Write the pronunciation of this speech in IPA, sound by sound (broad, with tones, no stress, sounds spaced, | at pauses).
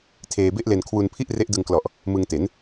tʰ eː˧ b e˥˩ ʔ l e˧ n kʰ w u˧ n pʰ i˥˩ ʔ r e˦˥ ʔ d ɯ˧ ŋ k l ɔ˨˩ ʔ | m ɯ˧ ŋ t e˩˦ n